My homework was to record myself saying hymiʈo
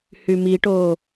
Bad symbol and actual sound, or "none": none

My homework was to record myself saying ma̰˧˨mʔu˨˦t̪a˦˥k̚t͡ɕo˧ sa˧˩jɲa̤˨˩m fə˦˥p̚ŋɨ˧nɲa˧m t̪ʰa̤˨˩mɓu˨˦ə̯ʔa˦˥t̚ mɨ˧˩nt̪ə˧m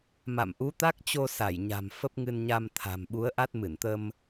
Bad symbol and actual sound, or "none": none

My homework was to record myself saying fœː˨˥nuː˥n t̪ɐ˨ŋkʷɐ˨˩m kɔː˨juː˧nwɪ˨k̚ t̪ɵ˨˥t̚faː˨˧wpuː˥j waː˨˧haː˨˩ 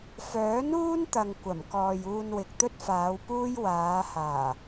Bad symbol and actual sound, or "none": ɵ˨˥ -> ɵ˥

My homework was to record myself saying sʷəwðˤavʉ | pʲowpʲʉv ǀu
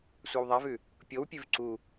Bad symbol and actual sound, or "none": ə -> a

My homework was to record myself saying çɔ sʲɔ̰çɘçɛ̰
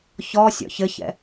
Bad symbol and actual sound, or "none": none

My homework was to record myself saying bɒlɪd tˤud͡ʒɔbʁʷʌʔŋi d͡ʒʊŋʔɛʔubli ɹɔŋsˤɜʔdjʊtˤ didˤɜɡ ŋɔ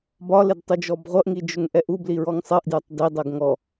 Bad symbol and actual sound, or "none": none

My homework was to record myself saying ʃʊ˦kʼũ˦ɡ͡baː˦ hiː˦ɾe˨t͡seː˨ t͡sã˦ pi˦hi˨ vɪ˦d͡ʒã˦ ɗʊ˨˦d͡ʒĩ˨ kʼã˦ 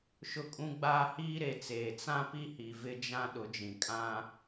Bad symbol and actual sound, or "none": none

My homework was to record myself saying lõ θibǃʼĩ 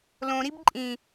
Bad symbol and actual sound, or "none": θ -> ɾ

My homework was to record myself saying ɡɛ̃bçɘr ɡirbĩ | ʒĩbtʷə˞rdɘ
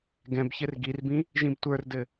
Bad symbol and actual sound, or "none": none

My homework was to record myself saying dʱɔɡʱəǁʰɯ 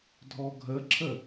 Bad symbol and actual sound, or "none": ɯ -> ə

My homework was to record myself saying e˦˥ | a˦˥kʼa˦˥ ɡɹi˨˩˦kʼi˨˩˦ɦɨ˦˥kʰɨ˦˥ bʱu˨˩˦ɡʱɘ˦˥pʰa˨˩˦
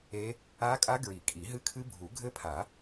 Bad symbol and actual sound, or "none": none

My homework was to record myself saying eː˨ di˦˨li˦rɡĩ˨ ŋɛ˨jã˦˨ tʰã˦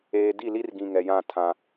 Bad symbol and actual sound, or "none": none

